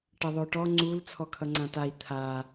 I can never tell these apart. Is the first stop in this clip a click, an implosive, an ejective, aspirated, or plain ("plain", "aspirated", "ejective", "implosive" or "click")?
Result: plain